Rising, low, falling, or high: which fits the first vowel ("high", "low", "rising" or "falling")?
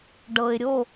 low